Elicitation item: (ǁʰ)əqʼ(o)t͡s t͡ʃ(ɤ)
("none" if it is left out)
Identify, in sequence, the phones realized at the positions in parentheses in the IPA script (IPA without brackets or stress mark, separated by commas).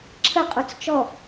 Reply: ǁʰ, o, ɔ